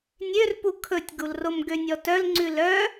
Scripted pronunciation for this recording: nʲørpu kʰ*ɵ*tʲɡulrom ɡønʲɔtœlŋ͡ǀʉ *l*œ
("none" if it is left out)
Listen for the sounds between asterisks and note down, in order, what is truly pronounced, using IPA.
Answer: ɵ, l

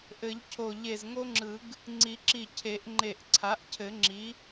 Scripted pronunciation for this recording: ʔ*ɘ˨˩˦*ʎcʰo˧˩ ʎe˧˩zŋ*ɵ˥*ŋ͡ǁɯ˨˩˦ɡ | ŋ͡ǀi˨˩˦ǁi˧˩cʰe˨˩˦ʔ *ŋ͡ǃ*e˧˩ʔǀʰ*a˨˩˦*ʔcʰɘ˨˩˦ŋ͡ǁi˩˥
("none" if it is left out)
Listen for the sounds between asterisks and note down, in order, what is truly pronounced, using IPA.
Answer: ɘ˨˩˦, o˥, ŋ͡ǃ, a˩˥

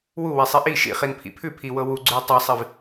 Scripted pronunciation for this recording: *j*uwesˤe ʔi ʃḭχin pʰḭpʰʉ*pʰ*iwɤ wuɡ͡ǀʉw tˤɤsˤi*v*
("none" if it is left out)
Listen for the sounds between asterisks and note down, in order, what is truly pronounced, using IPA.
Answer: w, pʰ, v

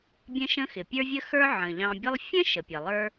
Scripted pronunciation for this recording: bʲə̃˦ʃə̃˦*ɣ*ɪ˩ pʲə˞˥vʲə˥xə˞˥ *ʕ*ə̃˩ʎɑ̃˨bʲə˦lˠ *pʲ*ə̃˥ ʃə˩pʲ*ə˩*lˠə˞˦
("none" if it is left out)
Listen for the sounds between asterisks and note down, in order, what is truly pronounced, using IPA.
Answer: x, ʕ, fʲ, ə˩

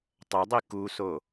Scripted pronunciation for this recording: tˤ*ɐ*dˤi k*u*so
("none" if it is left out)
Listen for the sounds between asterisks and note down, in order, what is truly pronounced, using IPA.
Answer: ɐ, u

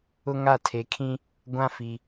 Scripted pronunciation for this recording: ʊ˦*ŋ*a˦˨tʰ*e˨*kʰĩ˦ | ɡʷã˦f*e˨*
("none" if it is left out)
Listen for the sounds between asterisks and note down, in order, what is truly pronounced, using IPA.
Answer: ŋ, e˨, i˨

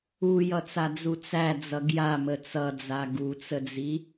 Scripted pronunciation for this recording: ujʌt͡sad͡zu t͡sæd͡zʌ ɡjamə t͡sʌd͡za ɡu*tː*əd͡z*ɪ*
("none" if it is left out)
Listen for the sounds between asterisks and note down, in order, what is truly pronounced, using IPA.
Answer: t͡s, i

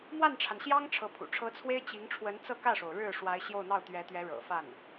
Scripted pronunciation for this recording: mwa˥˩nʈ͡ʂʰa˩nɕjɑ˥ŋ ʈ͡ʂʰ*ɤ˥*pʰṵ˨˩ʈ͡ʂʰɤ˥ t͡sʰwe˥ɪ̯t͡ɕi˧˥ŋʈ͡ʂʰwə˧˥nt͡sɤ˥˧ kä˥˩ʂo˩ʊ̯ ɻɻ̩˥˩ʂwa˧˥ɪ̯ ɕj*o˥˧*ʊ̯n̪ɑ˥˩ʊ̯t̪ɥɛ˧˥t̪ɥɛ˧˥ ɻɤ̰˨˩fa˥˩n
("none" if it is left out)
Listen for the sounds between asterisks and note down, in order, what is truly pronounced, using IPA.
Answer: ɤ˧˥, o˥˧

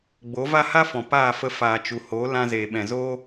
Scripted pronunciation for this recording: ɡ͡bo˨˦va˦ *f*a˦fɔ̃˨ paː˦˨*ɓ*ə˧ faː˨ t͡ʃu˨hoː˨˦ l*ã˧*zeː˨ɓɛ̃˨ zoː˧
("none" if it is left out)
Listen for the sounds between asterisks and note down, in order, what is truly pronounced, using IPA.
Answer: h, f, ã˧

